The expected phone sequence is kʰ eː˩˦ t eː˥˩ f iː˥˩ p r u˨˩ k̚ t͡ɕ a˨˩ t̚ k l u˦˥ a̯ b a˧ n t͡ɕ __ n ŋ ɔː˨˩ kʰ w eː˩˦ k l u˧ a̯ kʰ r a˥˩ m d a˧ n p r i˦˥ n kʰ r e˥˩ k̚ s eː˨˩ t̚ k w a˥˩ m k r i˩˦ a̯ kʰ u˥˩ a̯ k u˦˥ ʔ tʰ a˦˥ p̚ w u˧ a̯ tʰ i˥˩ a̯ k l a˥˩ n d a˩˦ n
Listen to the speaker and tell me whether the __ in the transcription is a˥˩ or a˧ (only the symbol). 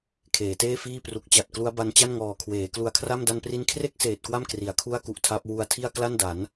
a˥˩